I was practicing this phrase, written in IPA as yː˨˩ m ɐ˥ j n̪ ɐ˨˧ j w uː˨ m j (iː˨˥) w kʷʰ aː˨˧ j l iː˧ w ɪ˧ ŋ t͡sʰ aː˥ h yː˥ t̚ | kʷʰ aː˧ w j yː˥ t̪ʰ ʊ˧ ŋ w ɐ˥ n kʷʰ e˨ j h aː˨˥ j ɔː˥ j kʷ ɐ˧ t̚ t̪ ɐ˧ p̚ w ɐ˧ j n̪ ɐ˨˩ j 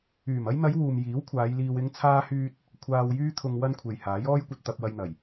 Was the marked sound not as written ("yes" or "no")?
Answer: no